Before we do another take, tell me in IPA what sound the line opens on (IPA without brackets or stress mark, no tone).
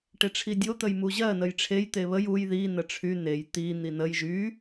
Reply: ʈ